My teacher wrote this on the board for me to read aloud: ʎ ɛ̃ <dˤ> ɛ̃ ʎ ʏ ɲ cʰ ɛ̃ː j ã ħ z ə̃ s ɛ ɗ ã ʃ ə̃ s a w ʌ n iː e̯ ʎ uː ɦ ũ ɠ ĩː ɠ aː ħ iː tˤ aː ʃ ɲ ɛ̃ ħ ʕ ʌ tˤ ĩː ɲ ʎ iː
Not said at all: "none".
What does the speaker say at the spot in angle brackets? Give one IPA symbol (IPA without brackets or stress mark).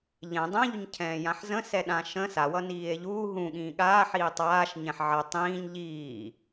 dˤ